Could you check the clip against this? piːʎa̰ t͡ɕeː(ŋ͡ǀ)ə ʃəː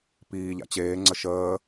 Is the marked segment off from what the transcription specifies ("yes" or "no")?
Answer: no